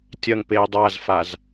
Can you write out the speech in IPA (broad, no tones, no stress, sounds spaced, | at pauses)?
tʲ ɐ ŋ p e dˤ a z f a z